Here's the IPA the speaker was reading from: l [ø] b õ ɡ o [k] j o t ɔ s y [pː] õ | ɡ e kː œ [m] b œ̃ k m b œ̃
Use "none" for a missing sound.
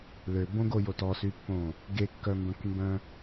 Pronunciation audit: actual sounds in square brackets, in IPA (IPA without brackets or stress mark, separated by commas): ø, none, pː, m